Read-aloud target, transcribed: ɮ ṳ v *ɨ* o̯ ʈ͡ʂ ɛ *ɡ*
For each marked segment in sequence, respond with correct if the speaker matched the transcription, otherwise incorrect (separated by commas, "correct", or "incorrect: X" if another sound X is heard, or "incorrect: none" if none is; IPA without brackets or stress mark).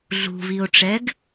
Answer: incorrect: i, correct